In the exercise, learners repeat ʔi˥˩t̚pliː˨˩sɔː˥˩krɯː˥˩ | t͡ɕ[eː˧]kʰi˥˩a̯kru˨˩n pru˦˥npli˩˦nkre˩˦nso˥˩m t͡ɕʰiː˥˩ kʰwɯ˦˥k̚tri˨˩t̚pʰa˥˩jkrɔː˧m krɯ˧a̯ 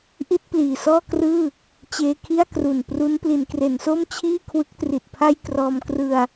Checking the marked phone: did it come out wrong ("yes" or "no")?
no